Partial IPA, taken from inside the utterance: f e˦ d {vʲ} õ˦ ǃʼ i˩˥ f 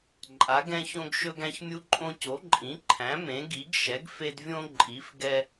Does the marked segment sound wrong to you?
no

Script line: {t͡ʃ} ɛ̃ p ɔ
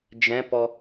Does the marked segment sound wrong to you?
yes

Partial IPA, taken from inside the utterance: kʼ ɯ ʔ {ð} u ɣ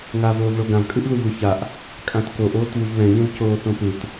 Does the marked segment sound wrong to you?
no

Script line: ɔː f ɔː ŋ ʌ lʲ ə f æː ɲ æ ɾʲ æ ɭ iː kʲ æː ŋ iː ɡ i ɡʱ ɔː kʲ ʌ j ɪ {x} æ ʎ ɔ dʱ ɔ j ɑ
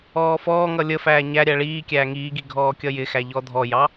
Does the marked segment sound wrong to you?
no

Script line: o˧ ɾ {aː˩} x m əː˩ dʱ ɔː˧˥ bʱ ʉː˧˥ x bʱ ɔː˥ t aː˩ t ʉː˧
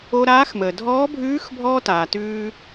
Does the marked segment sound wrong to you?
yes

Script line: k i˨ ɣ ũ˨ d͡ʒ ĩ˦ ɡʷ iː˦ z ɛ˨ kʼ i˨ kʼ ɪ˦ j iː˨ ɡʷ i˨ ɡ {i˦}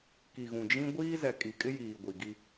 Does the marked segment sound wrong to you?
no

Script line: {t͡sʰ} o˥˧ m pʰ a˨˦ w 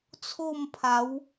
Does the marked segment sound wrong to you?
no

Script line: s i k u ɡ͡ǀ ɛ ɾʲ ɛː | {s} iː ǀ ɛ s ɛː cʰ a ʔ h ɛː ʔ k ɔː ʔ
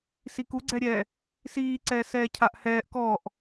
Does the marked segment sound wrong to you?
no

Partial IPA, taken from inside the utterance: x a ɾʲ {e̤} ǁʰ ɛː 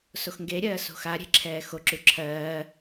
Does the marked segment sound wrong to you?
no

